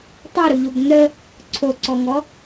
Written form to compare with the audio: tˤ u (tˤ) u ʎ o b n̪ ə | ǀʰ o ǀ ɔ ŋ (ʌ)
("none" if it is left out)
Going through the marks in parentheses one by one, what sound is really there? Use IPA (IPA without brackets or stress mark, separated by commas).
ɾ, ɔ